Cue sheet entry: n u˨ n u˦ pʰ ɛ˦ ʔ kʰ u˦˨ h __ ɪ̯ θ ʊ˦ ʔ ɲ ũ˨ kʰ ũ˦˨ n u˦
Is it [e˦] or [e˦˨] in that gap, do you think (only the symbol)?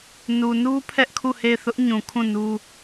e˦˨